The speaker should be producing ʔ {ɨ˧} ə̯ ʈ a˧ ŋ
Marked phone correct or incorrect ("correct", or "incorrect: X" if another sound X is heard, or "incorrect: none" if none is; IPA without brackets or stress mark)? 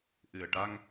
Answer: incorrect: ɨ˨˩